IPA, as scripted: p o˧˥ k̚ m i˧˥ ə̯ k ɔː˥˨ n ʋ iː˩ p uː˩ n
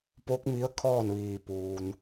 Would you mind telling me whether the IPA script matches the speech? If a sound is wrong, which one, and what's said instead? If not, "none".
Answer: k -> kʰ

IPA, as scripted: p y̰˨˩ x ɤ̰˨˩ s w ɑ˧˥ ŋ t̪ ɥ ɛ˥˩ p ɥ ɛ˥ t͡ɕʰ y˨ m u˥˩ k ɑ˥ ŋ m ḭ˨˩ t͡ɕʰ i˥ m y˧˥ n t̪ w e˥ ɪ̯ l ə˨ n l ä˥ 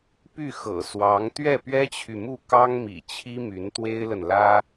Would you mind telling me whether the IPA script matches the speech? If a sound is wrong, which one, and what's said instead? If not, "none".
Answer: y̰˨˩ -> y˥˩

